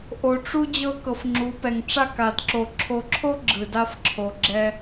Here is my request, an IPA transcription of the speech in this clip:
ʔo˨ʈ͡ʂu˦ d͡ʑɤ˦kɤ˨fŋ͡ǁu˨˦pɛ˨ŋ ʈ͡ʂa˦˨ka˨dǁo˨ ǁʰo˨ǁʰo˦ ɡ͡ǁɯ˨da˦f ǁʰo˨ɡ͡ǁɛ˦

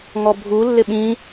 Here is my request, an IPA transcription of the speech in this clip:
ŋɔbʱu lːɪɓĩ

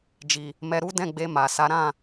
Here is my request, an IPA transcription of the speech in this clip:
d͡ʒi˨ | mɛ˧ɾu˦ dɛ̃˦˨ɡ͡be˧ ma˨ sa˨˦ɾã˦˨

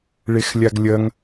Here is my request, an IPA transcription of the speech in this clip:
ɭexlʲaɡlʲɐŋ

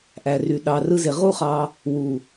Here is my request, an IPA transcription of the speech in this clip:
ʔæ˨ry˨ ɗɑ˨ rɯ˧ze˨ ʁu˦χɑ˧ | wu˨

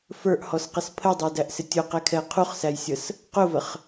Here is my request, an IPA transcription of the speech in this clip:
fə˞ʔhɔsqɛs pʰədˤə˞dæʔsɪ tʲʊqɛkʰɛ qʰuχsæjsʲəs | qʊvəχ

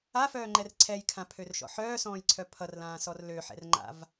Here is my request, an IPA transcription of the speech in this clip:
afœːŋ͡ǃɛr ǀʰɛjkʰãpʰørʃɔ̰ ħœːsɔ̃ːjǀʰœ pʰʌrlãːsɔr løħɛ̰rŋ͡ǃa̰v

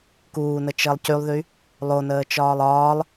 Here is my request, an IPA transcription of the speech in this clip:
kuːnət͡ʃəːlˠ cylˠðy | lˠonəːt͡ʃɒːlˠ ɒːlˠ

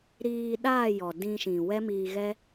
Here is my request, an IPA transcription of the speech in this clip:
ɾiː˧ɗaː˦˨ jɔ˨dĩ˧ʃĩ˨ wɛ˦miː˧ɣɛ˦

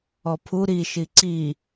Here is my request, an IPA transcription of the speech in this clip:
ɔpʰu ɾi ʃiǀi

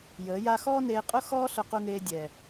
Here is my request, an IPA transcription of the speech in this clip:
jəː˨˦ja˦ xɔː˦neː˧qʼʊ˦ xɔː˦ɬʊ˧qu˧ŋeː˧ dʲɛ˨

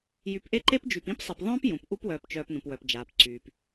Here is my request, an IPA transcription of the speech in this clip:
jy˨pʔe˦ǃe˦pd͡ʒy˨p ĩ˦psˤe˨pðˤœ̃ː˦p jũ˨p ʔu˦pwœː˨pt͡ʃœː˨p nũ˨pwœ˨pd͡ʒaː˨p ǀyː˨p

